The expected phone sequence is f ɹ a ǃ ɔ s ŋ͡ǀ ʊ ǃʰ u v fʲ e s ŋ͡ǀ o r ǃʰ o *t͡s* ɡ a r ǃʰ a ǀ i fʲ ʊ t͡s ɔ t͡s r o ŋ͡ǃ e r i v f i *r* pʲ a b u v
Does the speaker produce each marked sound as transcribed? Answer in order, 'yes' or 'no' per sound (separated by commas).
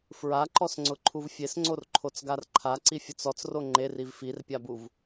yes, yes